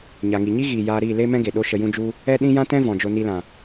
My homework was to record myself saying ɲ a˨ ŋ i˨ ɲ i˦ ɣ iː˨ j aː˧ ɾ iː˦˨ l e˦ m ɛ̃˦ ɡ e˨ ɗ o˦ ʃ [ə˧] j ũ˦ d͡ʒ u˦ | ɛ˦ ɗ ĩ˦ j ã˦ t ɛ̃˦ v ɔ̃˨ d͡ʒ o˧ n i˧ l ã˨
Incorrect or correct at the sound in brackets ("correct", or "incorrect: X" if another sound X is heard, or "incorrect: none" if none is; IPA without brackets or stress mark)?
correct